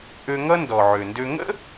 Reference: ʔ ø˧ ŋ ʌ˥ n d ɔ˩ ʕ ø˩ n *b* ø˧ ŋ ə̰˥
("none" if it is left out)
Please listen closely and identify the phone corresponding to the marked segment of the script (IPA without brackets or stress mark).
d